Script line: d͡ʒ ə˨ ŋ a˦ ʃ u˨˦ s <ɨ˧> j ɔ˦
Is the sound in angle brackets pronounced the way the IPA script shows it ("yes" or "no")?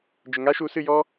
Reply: yes